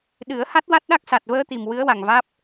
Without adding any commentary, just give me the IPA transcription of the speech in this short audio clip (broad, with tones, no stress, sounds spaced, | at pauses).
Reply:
ɗ ɨ˨˩˦ ə̯ h a˦˥ t̚ w a˦˥ t̚ ɗ a˦˥ k̚ s a˨˩ t̚ v əː˧ t̪ i˨˩ m w ɨ˧˥ ə̯ w a˨˩ ŋ v aː˦˥ p̚